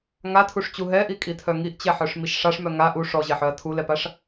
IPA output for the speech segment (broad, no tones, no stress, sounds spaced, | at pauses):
ŋ a tʰ u ʂ t͡ɕ u ɦ ɛ ʔ i kʼ i tʰ œ ŋ i ʔ t͡ɕ ɛ ħ œ ʂ m i ʃ ʂ a ʂ m œ ŋ a ʔ u ʂ ɔ ʑ e ħ œ ɐ̯ tʰ u l ɛ p a ʂ